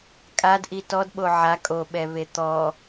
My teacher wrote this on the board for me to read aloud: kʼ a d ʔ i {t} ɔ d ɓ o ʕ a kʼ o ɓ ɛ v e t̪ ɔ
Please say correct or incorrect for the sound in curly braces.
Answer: correct